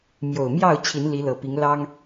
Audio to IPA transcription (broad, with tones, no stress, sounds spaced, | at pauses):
m j o˨˩ ʊ̯ m j ɑ˥˨ ʊ̯ t͡ɕʰ i˨˦ n l i˨˦ l ɤ˨˩ p i˨˦ ŋ l ɑ˦ ŋ